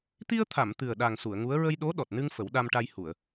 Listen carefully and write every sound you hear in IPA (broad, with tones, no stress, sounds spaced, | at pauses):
t̪ i˧ ə̯ t̪ʰ a˨˩˨ m t̪ ɨ˨˩ ə̯ ɗ a˨˩ ŋ s u˨˩˨ ə̯ ŋ u˧˥ ə̯ ɹ ə˧ j ɗ o˧˥ ɗ ɔ˨˩ t̚ n ɨ˧ ŋ f ə˨˩˦ w ɗ a˧ m ʈ a˧ j h u˨˩˨ ə̯